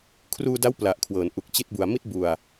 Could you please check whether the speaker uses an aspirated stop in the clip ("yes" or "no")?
yes